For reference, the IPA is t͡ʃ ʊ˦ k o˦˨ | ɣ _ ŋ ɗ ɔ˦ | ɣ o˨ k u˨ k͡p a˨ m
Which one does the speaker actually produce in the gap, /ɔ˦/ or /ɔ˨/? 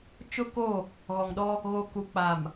ɔ˨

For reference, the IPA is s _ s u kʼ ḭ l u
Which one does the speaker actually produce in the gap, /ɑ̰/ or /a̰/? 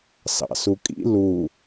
ɑ̰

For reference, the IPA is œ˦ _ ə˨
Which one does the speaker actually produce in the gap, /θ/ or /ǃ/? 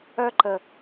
ǃ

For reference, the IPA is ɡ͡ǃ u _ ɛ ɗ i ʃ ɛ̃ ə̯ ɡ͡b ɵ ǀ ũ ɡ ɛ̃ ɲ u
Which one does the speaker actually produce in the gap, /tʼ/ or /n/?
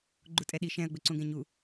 tʼ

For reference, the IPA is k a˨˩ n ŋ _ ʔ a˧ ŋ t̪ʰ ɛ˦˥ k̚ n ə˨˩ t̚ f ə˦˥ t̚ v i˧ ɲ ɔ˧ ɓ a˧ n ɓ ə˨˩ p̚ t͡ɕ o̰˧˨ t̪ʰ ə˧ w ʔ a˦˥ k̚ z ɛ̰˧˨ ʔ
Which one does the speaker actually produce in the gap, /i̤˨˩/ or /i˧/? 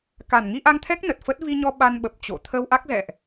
i˧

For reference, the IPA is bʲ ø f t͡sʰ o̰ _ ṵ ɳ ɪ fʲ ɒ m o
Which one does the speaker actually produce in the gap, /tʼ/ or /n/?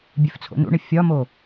n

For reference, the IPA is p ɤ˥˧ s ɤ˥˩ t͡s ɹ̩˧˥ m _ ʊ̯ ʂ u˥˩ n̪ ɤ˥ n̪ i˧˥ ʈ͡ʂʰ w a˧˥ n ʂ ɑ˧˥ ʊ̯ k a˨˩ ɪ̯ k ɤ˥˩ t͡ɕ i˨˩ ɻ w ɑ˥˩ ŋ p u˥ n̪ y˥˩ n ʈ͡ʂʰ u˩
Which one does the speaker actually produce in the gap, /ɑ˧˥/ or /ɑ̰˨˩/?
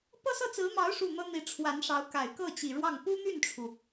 ɑ˧˥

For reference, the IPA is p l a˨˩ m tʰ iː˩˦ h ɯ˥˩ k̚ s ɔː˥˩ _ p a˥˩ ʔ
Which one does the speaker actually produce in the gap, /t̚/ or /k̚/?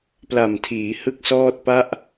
t̚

